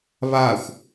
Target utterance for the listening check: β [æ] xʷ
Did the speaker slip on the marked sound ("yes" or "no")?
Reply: yes